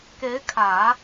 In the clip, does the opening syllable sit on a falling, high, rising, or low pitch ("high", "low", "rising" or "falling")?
rising